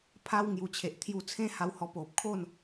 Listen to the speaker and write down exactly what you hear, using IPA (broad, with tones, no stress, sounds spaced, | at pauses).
pʰ a˧ w ŋ j u˨˩ t͡ɕʰ e˨ ʔ t̪ʰ j u˧ t͡sʰ ẽ˦ h a˧ w h ɔ˧ p o˨ p̚ kʰ o˥˧ n